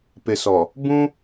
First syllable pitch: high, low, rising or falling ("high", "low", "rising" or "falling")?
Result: low